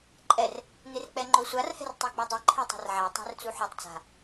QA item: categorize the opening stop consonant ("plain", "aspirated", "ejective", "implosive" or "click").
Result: click